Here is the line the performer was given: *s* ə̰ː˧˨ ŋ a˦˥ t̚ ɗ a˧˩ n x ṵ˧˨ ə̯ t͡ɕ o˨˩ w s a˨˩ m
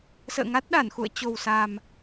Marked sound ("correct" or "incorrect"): correct